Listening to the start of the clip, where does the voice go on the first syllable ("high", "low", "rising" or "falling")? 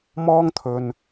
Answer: high